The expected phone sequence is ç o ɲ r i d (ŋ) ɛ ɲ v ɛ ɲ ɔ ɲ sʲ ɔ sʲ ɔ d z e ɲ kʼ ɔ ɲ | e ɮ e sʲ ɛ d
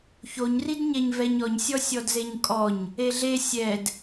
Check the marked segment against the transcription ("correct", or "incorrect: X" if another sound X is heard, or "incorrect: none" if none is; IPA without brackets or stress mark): incorrect: ɲ